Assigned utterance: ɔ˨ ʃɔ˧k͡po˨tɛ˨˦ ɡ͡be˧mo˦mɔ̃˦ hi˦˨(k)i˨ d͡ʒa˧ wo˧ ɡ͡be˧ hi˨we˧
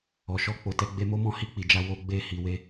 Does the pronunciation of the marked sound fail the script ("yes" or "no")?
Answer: yes